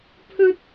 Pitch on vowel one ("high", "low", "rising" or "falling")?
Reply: high